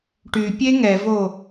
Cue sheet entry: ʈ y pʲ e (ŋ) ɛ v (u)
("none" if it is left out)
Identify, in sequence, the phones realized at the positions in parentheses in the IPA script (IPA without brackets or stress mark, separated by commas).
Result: ŋ, o